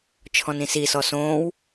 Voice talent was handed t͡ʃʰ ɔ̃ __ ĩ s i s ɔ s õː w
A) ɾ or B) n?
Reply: B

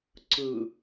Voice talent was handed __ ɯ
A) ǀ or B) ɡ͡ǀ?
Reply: A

